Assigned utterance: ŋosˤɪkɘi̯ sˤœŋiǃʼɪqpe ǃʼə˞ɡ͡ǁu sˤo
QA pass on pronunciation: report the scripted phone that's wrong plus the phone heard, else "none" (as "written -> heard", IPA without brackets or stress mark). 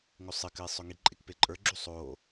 q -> k